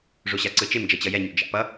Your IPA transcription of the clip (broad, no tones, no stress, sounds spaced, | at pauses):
ʐ o ɕ a ǀ ɯ t͡ʃ e m d͡ʒ ʌ t͡ɕ ʌ j ɛ ɲ ṵ d͡ʒ a̰ p ʌ